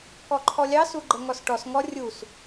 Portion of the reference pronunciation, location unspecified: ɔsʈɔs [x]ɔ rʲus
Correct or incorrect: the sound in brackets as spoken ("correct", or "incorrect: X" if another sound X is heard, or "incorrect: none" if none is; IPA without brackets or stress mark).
incorrect: ŋ